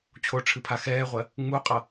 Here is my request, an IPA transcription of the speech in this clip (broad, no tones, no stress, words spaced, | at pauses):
t͡ɕʰoʈ͡ʂʰɨpʰa xɛːʁʷɜ | ŋ͡muqʼʌ